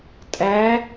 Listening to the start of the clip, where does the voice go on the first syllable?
rising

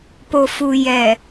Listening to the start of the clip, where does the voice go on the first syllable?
low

